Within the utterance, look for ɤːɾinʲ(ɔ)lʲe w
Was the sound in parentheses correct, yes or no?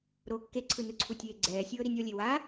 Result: yes